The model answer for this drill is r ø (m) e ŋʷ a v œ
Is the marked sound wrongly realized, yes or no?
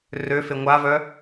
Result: yes